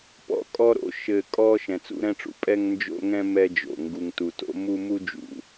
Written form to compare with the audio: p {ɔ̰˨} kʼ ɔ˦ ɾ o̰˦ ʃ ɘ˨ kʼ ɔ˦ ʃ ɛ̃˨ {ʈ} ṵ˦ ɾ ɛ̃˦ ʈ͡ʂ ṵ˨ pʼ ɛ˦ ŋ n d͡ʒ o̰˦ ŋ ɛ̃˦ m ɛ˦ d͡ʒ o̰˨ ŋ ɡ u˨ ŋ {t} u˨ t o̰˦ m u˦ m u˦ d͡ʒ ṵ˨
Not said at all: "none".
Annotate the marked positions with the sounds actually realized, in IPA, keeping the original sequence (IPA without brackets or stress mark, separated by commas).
ɔ̰˦, t͡s, t